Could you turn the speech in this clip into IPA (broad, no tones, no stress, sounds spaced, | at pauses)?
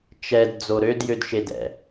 t͡ʃ ɛ d d͡z o ɾ ø d j ø d ʃ e d ɛ̰